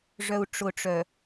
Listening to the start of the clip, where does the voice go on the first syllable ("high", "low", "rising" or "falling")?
low